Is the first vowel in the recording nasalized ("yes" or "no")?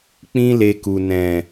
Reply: yes